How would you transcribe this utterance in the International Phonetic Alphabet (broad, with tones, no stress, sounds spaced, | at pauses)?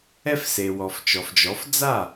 ɛ˧ f s e˩ w ɔ˩ f t͡ʃ ɔ˩ f d͡ʒ ɔ˩˥ f d͡z a˥˩